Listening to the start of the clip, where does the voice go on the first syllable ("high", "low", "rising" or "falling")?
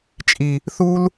low